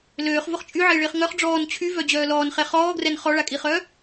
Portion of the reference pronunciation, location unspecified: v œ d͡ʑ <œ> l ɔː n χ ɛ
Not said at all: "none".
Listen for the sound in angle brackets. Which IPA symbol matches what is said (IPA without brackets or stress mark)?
œː